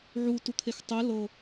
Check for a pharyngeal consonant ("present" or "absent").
present